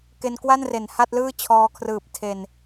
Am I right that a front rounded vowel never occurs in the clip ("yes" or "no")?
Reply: yes